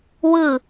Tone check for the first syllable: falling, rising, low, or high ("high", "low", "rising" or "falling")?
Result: falling